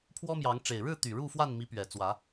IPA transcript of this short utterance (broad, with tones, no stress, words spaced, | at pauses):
pʰwɔ˦mjɑ˨˦ŋʈ͡ʂe˨˩ɪ̯ ɻɻ̩˥˨t̪y˨˩ ɻu˥˨ fwa˥˨nmi˨˦ pɥɛ˨˩t͡swä˨˦